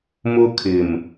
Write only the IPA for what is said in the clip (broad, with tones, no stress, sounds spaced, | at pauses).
m ʊ˦ kʰ ɪ˨ m